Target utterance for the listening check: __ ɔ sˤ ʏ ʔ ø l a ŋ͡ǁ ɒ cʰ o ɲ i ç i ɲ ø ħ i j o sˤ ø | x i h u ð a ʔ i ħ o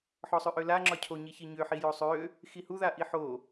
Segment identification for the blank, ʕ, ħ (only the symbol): ħ